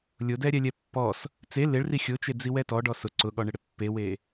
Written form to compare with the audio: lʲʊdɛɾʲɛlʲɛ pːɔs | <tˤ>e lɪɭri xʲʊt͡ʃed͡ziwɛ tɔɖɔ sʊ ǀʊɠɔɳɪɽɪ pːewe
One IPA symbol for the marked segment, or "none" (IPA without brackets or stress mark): t͡s